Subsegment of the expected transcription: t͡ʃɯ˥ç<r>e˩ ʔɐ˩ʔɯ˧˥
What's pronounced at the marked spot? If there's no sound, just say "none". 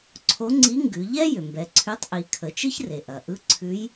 r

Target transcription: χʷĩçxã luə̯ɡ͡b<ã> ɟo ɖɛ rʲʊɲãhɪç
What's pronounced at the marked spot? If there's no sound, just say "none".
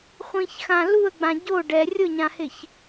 ã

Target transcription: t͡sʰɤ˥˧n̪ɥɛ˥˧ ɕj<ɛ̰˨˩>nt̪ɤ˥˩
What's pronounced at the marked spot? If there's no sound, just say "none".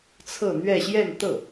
ɛ˥˧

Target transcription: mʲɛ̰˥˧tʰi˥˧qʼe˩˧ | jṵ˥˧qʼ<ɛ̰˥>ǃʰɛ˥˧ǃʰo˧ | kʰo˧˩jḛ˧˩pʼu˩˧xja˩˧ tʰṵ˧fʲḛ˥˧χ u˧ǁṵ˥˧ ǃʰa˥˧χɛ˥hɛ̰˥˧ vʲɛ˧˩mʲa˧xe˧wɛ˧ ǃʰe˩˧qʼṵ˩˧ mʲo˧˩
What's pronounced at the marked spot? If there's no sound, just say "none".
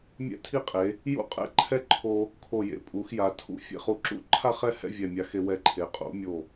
ɛ̰˥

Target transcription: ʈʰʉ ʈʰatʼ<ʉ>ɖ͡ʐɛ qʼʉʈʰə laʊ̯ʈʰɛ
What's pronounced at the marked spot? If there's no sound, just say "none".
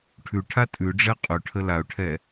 ʉ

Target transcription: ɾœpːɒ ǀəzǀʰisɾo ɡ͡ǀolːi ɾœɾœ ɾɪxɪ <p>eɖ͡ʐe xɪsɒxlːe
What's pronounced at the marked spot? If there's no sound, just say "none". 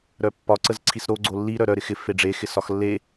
f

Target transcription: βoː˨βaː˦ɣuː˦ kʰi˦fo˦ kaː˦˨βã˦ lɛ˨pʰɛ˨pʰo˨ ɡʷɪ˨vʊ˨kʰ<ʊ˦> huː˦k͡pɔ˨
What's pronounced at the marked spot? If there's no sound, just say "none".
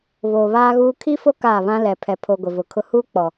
ʊ˦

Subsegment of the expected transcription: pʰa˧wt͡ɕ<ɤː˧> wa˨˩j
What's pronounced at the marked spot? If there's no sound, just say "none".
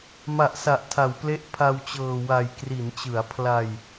ɤː˨˩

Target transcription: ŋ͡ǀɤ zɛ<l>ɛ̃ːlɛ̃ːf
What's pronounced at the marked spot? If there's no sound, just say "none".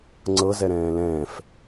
ɾ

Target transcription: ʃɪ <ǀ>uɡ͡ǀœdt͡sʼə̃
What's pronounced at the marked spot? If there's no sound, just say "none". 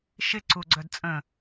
ǀ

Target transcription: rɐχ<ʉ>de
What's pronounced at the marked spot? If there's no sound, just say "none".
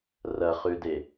ʉ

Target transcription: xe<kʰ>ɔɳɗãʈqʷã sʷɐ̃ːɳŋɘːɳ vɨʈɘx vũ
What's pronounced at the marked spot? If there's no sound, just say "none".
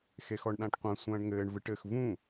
x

